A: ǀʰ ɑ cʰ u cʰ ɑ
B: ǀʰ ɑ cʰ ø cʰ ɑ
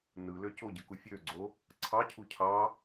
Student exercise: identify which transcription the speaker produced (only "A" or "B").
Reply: A